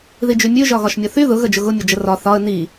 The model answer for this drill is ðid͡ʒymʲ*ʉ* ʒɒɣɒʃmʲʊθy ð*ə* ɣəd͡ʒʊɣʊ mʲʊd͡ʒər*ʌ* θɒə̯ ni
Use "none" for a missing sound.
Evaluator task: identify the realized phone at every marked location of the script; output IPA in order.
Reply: ʉ, ʊ, ɒ

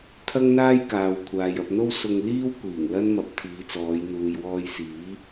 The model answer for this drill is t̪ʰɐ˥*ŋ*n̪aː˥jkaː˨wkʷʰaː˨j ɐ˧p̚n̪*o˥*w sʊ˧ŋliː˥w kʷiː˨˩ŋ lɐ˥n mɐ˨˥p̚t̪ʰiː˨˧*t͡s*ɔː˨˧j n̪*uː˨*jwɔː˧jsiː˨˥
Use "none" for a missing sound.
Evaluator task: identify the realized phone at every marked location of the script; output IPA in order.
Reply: ŋ, o˥, t͡s, uː˨

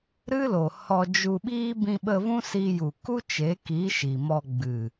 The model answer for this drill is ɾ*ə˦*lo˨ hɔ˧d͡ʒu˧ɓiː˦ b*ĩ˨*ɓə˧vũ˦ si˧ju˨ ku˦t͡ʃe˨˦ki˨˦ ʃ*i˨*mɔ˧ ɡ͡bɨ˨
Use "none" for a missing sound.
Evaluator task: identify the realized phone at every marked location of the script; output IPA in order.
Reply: ɨ˦, ĩ˧, i˨

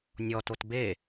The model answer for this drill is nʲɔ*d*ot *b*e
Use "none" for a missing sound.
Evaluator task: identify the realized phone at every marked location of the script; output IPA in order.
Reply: t, b

